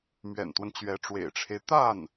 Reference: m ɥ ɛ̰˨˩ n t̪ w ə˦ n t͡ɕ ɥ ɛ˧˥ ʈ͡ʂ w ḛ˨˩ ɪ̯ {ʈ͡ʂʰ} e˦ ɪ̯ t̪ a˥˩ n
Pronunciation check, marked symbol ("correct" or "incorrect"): correct